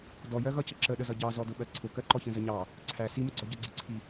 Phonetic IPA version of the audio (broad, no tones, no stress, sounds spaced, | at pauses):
d ɔ j ɜ ɣ ʌ c ə ǁ ə ɗ ə z ʌ ɟ ɑ z ɔ d ʊ ɓ ɜ ǀʰ ʊ k ɜ ǃ ɔ ç ə̃ z ə ɲ ɑ | ǀʰ æ s i m ʊ ɡ͡ǀ ɔ ɟ ə ɡ͡ǀ i ǀʰ i